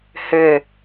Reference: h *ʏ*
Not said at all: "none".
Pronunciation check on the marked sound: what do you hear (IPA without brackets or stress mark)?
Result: ʏ